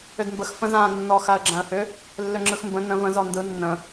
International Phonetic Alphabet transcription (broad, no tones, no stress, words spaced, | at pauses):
ʏdmbəx fə̃zãːnːɔ xaə̯ɡ͡ǁãə̯hʏ | lːʏŋ͡ǁɯxmbə̃ nə̃ və̃z ɔndɯ nːə̃